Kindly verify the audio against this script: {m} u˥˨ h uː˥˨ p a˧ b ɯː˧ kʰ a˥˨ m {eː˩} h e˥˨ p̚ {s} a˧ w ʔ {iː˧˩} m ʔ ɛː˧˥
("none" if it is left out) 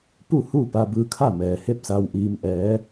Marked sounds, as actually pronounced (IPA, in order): p, ɛː˩, s, iː˧

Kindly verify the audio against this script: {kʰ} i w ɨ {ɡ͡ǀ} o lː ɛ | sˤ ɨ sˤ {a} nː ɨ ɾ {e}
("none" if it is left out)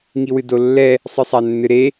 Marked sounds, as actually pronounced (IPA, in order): ŋ, d, a, e

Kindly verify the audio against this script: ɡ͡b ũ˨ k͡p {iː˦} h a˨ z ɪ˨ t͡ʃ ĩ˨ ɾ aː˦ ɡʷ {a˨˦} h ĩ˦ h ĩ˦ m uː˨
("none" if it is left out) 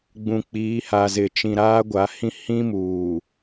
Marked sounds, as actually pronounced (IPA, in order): iː˨˦, a˨˦

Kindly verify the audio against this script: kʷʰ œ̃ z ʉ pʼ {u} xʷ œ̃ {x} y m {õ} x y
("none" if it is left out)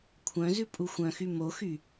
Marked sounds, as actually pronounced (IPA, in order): u, x, o

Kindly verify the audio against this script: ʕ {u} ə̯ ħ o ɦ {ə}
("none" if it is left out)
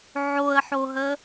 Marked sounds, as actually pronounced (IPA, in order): o, ə

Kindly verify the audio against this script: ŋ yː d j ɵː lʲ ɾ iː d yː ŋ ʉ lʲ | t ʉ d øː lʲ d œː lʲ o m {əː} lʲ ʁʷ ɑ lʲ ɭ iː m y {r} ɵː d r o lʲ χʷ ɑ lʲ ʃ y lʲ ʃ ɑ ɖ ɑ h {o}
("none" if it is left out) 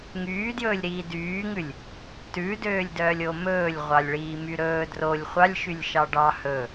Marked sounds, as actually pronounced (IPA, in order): ɵː, ɾ, ɵ

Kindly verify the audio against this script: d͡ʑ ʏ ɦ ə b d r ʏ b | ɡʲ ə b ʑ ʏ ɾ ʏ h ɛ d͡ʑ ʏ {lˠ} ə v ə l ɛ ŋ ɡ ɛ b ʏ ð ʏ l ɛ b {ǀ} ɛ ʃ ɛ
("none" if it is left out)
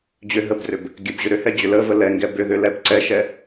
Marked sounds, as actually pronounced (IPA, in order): l, ǀ

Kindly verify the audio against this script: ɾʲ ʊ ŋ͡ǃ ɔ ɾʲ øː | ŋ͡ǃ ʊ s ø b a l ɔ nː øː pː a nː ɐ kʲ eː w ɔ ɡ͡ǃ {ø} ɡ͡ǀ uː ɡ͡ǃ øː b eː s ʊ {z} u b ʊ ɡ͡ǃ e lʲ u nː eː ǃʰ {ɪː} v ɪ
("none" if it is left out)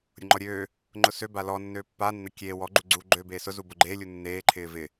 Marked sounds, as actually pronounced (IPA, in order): u, z, ɪː

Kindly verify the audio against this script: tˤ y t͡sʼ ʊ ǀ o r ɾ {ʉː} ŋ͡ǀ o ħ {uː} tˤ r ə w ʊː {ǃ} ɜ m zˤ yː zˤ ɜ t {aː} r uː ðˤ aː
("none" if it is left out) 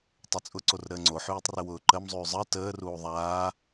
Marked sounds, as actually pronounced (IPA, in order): əː, yː, ǃ, əː

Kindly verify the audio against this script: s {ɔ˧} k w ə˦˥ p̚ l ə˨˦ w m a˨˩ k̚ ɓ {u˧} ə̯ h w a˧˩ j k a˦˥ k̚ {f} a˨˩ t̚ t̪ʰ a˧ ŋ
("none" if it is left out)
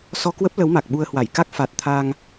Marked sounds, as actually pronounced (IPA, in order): ɔ˧, u˧, f

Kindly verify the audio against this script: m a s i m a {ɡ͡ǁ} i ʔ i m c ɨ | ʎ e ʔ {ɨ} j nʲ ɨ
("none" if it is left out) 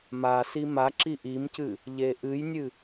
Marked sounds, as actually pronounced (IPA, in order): ǁ, ɨ

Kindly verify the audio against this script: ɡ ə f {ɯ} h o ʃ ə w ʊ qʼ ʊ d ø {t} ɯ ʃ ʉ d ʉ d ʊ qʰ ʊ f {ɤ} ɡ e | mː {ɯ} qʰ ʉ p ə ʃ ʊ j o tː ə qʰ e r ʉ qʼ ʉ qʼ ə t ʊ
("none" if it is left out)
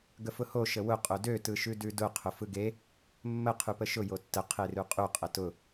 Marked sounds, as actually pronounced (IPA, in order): ʊ, t, ɯ, ə

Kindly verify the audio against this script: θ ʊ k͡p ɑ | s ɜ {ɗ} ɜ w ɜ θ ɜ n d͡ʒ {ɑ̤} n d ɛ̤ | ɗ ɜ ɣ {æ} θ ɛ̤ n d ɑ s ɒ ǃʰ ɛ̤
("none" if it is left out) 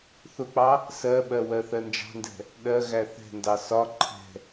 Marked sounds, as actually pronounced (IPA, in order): ɓ, ɑ̤, æ

